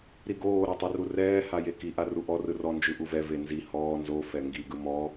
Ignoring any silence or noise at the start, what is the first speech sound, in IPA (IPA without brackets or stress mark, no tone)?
ɾ